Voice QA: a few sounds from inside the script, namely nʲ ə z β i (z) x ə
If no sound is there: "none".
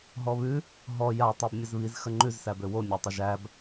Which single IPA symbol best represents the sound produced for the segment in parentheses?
z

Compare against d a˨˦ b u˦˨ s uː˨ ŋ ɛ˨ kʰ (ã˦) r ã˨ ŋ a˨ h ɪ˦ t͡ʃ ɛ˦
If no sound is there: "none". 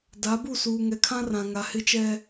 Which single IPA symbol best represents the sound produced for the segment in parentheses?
ã˦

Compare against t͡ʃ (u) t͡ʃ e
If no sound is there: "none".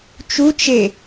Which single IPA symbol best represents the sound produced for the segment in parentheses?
u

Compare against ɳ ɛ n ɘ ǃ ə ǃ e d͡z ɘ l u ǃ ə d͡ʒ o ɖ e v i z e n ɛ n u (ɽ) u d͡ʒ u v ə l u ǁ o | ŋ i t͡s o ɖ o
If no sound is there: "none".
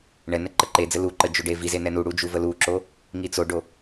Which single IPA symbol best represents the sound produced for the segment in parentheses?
ɽ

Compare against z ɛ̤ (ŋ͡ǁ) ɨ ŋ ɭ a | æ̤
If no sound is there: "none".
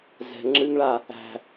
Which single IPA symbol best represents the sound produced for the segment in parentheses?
ŋ͡ǁ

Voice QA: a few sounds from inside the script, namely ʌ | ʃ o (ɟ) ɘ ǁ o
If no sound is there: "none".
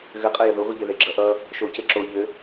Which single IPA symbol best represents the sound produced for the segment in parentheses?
c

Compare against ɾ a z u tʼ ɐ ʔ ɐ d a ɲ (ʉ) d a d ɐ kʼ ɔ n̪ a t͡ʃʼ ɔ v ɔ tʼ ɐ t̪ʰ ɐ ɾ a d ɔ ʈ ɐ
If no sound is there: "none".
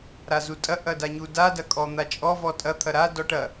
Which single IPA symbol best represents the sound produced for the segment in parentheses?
u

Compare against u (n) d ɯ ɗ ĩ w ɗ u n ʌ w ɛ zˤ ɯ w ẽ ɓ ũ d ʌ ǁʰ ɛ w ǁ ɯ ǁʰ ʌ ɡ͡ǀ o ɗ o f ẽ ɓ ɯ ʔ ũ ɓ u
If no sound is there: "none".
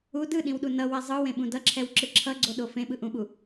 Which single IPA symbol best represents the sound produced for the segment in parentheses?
none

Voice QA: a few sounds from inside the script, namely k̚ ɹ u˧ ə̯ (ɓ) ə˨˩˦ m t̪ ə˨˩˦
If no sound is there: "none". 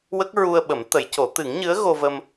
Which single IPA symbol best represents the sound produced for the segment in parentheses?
ɓ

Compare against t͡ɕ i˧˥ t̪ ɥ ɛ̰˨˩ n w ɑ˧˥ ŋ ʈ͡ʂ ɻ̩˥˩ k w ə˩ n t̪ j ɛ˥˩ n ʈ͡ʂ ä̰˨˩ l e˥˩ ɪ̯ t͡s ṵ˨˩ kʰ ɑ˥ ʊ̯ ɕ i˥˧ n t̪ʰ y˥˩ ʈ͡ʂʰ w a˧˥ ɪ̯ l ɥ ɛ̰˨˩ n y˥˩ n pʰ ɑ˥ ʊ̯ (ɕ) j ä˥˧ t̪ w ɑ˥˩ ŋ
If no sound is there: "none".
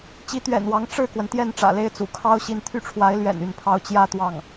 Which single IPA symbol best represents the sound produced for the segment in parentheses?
t͡ɕ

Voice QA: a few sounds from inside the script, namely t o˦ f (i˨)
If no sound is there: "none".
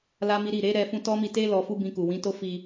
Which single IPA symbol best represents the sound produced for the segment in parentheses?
i˧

